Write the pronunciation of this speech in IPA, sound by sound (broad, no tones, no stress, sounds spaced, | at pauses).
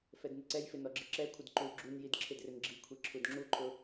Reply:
f ɛ d n ɪ ǀ ɛ j f ɪ n ɔ ɡ͡ǁ ɪ ǁ ɛ kʷʰ ɪ d ǃ u ɡ͡ǁ u n j i d ǁʰ ɪ d r ɪ n ɡ͡ǁ i kʷʰ i ǁʰ u d ŋ͡ǁ u ǃʰ ʊ